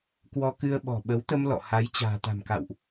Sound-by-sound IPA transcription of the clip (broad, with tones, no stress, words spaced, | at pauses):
kwɔ˧kɨ˧ə̯ ɓɔ̤˨˩ ɓə˨˦wt̪ə˧m lɔ̰˧˨ ha˨˦j t͡ɕa̤ː˨˩t̪a̤˨˩mka̰˧˨wʔ